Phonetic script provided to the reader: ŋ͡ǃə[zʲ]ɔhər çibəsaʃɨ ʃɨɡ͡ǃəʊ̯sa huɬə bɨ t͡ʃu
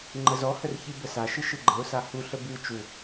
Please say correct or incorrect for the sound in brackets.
incorrect